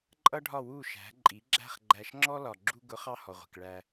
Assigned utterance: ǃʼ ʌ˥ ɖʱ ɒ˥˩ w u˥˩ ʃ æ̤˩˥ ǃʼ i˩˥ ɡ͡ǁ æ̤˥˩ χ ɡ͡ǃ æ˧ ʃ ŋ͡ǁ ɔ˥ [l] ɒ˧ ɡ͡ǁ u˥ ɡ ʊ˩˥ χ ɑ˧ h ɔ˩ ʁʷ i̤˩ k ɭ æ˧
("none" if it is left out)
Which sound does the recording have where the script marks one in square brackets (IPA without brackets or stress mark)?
l